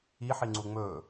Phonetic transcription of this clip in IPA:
i ħ i ŋ͡ǀ u ŋ͡m ɵ

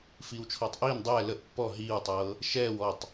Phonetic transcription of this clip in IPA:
f iː w t͡ʃʰ ɔː tˤ ʔ iː n dˤ ɛː l ə ʔ pː ɔ ɦ iː w tˤ ɤː | ʃ ɛː w ɔ tˤ

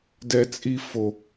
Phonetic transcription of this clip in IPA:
d ɛ˦ t͡sʼ i˦ f o˦

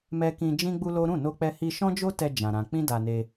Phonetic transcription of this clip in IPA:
m ɛ˦ k ĩ˦ d͡ʒ ĩ˦ ɡ͡b u˦ l o˦ ɾ ũ˦˨ n o˧ k͡p ɛ˧ h i˧ ʃ ɔ̃˦ d͡ʒ o˦ t ɛ˧ d͡ʒ ã˧ ɾ ã˧ k͡p ĩ˦ d a˧ n e˧

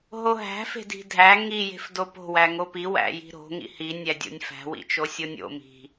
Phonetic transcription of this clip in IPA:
ɦ o ɦ æ̤ f e̤ d i̤ dʱ æ ŋ i j e̤ f d o p o̤ w æ ŋ o p i w æ̰ j i̤ ɾ o̤ ŋ ḭ h i nʲ æ dʲ o̰ nʲ f æ̤ w ḭ t͡ʃ o sʲ o nʲ o̰ m i̤

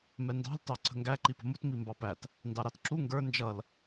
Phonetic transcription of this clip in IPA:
m ɛ n d ɑ̤ l t ɑ ǀʰ ə̤ ŋ ɡ æ ǃ i p ə̤ m u t m i m b ɑ p æ t | n d ɑ ɾ ɑ t ǁ u ŋ ɡ ə˞ n d͡ʒ ʌ l

